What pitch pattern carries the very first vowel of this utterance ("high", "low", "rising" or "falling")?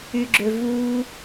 low